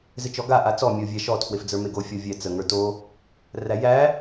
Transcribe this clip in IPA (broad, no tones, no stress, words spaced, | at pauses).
zɪt͡ʃɔɡa ʔat͡sɔ mʲovʲæʃɔ tʰwefd͡zə˞meɡo fʲɔvʲɛ t͡sə ŋə˞to | ræjæ